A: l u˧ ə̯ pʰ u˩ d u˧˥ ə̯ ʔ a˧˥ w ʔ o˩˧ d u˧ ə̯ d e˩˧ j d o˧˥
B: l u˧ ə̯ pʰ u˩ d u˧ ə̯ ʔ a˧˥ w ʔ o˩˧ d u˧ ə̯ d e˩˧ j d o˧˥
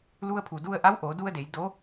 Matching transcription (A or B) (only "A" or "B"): B